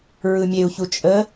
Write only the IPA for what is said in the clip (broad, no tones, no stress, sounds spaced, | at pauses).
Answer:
ɹ ɯ mʲ e u̯ ç u t͡ʃʼ ə